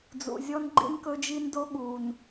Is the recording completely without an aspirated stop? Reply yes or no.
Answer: yes